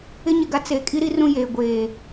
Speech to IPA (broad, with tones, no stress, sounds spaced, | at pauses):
ɪ˦ ɲ ɪ˨ ɡ a˦ t͡s eː˨ kʼ i˦ ɾ i˦ r ũ˦ j eː˨ ɡʷ eː˨